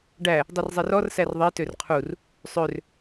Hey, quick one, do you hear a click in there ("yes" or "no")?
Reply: no